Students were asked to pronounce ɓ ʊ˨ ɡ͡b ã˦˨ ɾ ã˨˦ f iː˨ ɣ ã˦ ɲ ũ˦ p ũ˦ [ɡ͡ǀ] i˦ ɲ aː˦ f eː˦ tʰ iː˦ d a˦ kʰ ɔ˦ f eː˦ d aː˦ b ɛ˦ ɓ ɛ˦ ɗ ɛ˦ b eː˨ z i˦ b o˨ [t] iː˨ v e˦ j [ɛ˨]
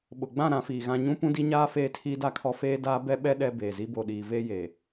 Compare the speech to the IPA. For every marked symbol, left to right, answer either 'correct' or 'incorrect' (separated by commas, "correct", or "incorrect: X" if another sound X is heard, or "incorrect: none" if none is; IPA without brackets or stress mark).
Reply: incorrect: d, incorrect: ɗ, incorrect: e˨